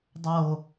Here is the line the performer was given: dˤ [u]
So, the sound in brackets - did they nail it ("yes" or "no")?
no